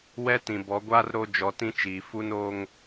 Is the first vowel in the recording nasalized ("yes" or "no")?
no